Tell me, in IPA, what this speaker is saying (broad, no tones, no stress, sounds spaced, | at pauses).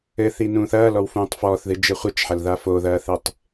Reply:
ɘ θ i n ũː θ ɐː l ɔ w f ũː tˤ f ɔː θ ð ɨ d͡ʒ ɘ χʷ ɘ t͡ʃ ħ ɐ l ð a f o ð ɐː θ e tˤ